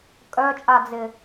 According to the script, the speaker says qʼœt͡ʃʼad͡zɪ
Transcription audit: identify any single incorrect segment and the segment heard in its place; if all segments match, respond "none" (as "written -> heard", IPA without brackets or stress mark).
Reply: qʼ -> kʼ